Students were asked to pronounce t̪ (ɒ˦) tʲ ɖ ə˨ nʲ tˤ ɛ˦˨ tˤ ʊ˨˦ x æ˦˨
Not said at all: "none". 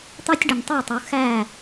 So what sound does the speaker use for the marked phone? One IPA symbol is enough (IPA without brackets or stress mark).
ɑ˦